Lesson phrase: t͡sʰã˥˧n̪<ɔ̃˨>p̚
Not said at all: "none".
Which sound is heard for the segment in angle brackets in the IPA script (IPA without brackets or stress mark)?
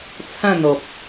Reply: ɔ˨